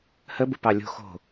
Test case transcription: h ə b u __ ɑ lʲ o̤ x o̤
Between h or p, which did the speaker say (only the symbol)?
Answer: p